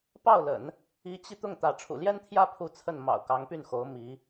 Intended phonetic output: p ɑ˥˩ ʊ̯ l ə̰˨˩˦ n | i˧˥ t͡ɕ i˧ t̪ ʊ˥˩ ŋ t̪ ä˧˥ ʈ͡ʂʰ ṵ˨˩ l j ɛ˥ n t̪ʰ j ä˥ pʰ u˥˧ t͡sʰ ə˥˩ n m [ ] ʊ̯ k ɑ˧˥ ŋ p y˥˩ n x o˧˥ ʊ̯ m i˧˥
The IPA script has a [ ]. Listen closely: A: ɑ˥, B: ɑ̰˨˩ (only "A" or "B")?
B